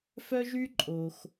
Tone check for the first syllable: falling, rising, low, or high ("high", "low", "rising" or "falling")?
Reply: high